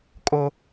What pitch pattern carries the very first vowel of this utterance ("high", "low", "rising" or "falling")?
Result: high